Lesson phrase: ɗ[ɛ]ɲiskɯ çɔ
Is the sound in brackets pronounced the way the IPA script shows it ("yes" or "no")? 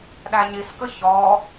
no